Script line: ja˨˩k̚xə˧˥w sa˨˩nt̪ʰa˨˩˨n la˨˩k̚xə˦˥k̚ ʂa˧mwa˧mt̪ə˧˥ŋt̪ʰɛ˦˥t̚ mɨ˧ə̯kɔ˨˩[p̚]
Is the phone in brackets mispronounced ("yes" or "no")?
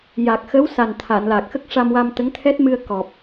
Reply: no